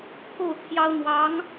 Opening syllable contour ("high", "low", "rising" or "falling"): falling